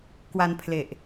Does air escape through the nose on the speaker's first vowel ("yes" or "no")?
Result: no